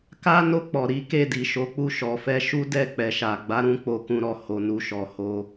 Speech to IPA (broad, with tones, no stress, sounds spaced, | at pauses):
k a˦ n o˦˨ k͡p ɔ˨ ɾ i˨˦ k e˦˨ d i˨ ʃ o˨˦ k͡p u˦˨ ʃ ɔ˨ f ɛ˧ ʃ u˦ d ɛ˦˨ k͡p ɛ˨ ʃ a˨ ɡ͡b a˨˦ ɾ ũ˧ k͡p o˧ k ũ˦ ɾ ɔ˦˨ h o˨ n u˨ ʃ ɔ˨ h o˧